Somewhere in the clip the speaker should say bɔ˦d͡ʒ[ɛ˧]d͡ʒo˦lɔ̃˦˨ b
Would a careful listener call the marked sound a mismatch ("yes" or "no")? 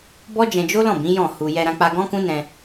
yes